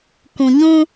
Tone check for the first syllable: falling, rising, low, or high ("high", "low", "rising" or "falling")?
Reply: low